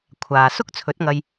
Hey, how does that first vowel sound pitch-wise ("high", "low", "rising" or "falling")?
low